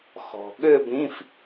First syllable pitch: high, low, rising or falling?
low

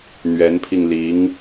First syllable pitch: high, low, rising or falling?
rising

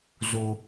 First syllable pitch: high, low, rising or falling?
high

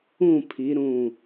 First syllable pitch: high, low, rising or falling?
falling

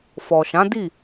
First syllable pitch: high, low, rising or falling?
low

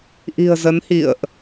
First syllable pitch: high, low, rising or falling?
low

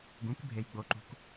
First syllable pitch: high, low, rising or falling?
rising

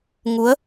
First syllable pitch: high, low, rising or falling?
rising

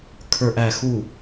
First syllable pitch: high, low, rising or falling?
low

